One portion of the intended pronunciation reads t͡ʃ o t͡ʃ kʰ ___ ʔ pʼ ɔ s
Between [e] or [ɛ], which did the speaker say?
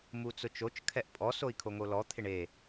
ɛ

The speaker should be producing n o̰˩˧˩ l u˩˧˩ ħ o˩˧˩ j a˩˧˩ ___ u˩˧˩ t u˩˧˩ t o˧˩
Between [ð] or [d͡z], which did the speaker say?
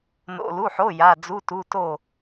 d͡z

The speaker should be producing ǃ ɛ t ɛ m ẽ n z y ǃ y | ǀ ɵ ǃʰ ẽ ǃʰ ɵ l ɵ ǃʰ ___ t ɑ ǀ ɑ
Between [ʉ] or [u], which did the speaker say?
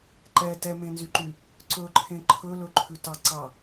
ʉ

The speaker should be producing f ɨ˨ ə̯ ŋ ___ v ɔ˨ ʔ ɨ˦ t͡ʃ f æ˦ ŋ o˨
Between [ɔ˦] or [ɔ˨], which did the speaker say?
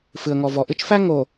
ɔ˨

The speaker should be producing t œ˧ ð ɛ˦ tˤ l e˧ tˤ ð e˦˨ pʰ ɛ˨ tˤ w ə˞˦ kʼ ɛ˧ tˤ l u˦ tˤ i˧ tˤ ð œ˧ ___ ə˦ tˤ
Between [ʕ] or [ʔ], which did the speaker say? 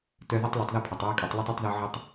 ʕ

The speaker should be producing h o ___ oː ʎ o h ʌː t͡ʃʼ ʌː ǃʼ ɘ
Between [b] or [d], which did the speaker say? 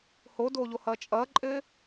d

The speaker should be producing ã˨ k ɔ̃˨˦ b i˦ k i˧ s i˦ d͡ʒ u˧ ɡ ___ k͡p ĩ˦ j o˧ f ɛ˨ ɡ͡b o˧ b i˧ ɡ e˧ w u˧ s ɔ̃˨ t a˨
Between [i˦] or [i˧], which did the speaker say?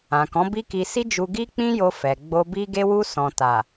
i˦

